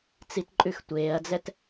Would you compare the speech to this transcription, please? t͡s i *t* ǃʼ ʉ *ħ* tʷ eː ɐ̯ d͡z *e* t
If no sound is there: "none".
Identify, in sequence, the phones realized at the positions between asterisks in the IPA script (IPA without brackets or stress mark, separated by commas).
t, x, ɛ